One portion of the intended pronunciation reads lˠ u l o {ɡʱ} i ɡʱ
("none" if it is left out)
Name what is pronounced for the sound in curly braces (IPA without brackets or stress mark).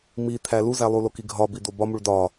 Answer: k